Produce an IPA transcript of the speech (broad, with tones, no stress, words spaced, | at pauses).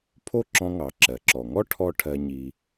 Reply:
pʰo˥ǁɔ̃˧ŋɑ˩ ǁɜ˩ǁɔ˩ŋɔ˥ ʈʰɔ˧ ʈʰɜ˧ɲi˧